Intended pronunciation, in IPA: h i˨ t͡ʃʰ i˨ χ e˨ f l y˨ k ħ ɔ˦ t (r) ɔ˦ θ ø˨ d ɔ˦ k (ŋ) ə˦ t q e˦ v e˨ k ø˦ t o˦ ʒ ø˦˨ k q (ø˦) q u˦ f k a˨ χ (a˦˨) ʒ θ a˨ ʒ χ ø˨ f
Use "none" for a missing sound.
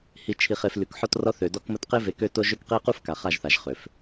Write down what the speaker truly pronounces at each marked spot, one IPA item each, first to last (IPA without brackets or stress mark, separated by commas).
r, m, e˦, a˦˨